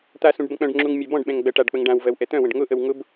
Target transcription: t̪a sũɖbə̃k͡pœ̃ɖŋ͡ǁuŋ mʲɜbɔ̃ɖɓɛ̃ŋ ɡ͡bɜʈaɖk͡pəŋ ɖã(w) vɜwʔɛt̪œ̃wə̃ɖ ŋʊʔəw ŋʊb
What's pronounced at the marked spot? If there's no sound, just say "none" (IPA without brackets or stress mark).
w